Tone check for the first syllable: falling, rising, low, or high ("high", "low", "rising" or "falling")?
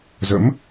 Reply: rising